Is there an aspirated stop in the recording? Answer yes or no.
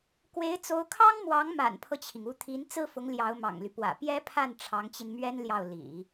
yes